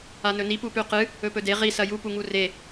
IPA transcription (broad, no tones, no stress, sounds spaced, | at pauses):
a n ɵ n i p u p ʉ q ɨ | ɵ p ɵ d e ʁ i s ɐ j u p u ŋ u r e